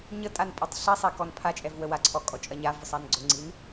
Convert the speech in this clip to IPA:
ɲətʼan pʼɔtˤɬisˤe kɔnpʰat͡ʃʼɛv wəwaǀʰɔ kʼɔt͡ʃʼɐɲavʊ sˤanɡ͡ǀʊŋ͡ǀin

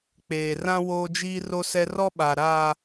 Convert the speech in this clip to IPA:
k͡peː˨rã˦ woː˦d͡ʒiː˦ ro˦sɛ˦ rɔ˦ɓa˨ ɾa˨

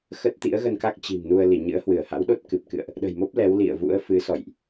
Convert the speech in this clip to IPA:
xə˦˥t̚ t̪ḭ˧˥ə̯ɣə˧nka˦˥k̚ t͡ɕi̤˨˩m nu˧ə̯li˧˩ɲɨ̰˧˥ə̯hwɨ˧˩ə̯ ha̰˧˥wɗo˦˥t̚ kɨ˨˩p̚kɨ̰˧˨ə̯ʔ | ɗə̤˨˩jmo˦˥p̚ lɛ˨˦wlḭ˧˨ə̯vṵ˧˥ə̯ fɨ˨˦sɔ̰˧˨jʔ

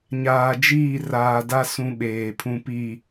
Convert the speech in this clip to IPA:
ɲaː˨d͡ʒiː˦˨ raː˨da˦ sũ˦ɓeː˨pʰũ˦ pi˦˨

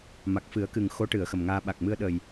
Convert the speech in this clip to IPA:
ma˨˩k̚fɨ˨˩˦ə̯kɨ˨˩ŋ xo˧˥ʈɨ˨˩˨ə̯ xə˨˩mŋaː˧ ɓa˨˩k̚mɨ˧ə̯ɗə˨˩j

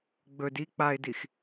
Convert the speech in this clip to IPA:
ɡ͡bɵd i k͡paɪ̯dix

